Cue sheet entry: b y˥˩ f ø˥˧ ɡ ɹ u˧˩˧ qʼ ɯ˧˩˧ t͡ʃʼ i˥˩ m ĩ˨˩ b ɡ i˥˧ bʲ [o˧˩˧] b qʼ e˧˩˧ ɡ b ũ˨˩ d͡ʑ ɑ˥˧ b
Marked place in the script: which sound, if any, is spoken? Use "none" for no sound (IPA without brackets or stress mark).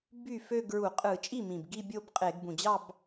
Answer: o˥˧